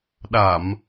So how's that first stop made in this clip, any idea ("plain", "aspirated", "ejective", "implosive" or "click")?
implosive